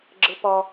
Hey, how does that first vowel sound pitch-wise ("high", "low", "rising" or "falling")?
high